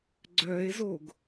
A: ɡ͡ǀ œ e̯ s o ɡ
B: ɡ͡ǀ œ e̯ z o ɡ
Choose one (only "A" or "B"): B